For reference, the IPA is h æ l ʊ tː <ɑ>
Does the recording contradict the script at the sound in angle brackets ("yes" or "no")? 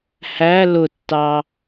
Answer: no